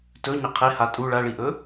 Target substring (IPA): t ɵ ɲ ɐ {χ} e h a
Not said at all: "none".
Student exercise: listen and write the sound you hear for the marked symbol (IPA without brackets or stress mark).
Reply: qʰ